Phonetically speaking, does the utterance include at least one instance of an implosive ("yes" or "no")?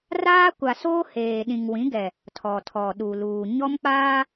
yes